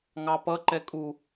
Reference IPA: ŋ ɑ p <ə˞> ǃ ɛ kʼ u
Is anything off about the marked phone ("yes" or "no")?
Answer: yes